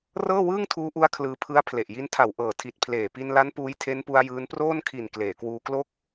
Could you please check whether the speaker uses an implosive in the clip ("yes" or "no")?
no